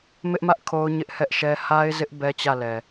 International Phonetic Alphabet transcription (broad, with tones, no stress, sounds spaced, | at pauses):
m ɪ˦ ʔ m ä˦ ʔ kʰ o˦ ʊ̯ ɲ ɪ˦ ʔ h ɛ˦ ʔ ʃ ɛ˦ h a˦ ɪ̯ z ɪ˦ ʔ b ɛ˦ t͡ɕ ä˦˨ l ɛ˨